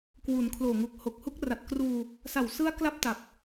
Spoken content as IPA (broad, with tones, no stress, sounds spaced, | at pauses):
k w u˩˦ n kʰ l oː˨˩ ŋ u˨˩ k̚ h o˨˩ k̚ h u˦˥ k̚ r a˨˩ t̚ k r uː˧ | s a˨˩ w s ɯ˦˥ a̯ k l a˥˩ p̚ t a˨˩ p̚